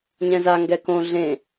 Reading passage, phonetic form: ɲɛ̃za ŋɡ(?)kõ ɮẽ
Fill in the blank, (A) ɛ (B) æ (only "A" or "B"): A